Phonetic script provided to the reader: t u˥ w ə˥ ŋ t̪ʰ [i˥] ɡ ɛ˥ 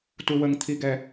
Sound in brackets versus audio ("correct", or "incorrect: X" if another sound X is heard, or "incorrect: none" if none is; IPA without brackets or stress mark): correct